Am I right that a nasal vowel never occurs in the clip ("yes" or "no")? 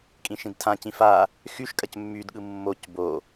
no